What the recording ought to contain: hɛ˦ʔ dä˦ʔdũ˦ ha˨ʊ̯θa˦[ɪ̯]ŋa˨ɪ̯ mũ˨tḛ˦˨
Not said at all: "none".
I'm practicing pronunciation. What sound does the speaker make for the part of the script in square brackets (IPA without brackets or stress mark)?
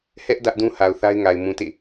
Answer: ɪ̯